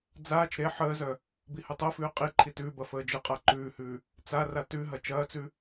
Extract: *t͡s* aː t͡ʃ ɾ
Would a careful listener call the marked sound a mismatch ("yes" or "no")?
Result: yes